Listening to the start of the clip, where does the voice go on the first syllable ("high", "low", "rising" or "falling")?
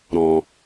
low